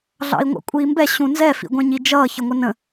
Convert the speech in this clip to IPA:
ɮ ɑ̰ i̯ ŋʷ ɑ̰ kʷʼ iː m b ɛ ɕ ũ n z ɛ f ḭ ɡʷ ɛ̃ ɲ i d͡ʒ ʌː ç ə ŋʷ ə n ə̃

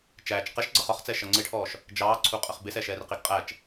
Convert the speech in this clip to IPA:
t͡ʃ æː t͡ʃ q ɛ ʃ ɡ͡ǀ ʌ χ ɒ χ t͡s ɛ ʃ ʌ ŋ͡ǀ ɪ ʈʰ ɔː ʃ | d͡ʒ ɑː ǀʰ u qʼ ə χ b ɪ s ɛ ʃ ɛː r q i ɡ qʼ æ t͡ʃ

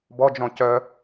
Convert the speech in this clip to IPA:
b ɔ d͡ʒ ɔ̃ c œ

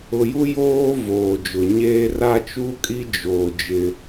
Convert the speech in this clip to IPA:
ʊ˨ j u˦ j oː˦ v oː˨ d͡ʒ ʊ˨ ɲ eː˦ r a˦ t͡ʃ u˦ kʼ i˦ d͡ʒ oː˨ d͡ʒ ɪ˦

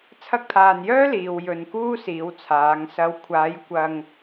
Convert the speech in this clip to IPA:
t͡sʰ ɐ˥ k̚ t̪ʰ aː˧ n j œː˥ l iː˨ w j ɵ˨ n k uː˥ s iː˨˧ w t͡sʰ aː˨˧ ŋ s ɐ˨˧ w kʷʰ aː˨˧ j kʷ ɐ˧ ŋ

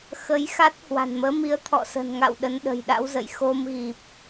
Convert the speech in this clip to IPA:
x ə˨˦ j x a˦˥ t̚ h w a̤˨˩ n m əː˨˦ m i˨˦ ə̯ t̪ʰ ɔ̰˧˨ s ə̤˨˩ n ŋ a̰˧˨ w ɗ ə˨˦ n ɗ ə̤˨˩ j ɗ a̰˧˥ w z ə̰˧˨ j x o˧ m ɣ i˨˩ p̚

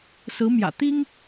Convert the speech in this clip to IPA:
s ɹ̩˧˥ m j ä̰˨˩ t̪ i˥ ŋ

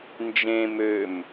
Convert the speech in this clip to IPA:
n d͡ʒ ẽ m ø m

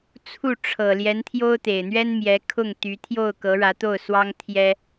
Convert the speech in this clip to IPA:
t͡sʰ u˥˩ ʈ͡ʂʰ ɤ˨˩ l j ɛ˧˥ n t̪ʰ j o˥ ʊ̯ t̪ e˨˩ ɪ̯ n̪ ɥ ɛ˥ n m j ɛ˧˥ kʰ ʊ˥˩ ŋ t̪ y˧˥ t̪ʰ j o˥˩ ʊ̯ k ɤ˧˥ ɻ ä˧˥ t̪ o˥˩ ʊ̯ s w ɑ˥ ŋ t̪ʰ j ɛ˥

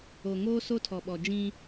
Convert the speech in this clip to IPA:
o˨ ŋ oː˦ s o˦ tʰ ɔ˨ ɓ ɔ˨ d͡ʒ ĩ˦

